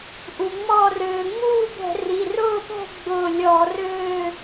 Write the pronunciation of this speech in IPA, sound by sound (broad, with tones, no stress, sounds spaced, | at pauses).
ʔ u˩ ŋ͡m ɔ˧˩ r øː˩ ŋ͡m uː˥˨ ɡ ɛ̤˧˩˧ r i˩˧˩ r ʊː˥˨ p ɛ̤˥˨ ɡ͡b ʊː˧˩ lʲ ɔ˧˩˧ r ø˥˨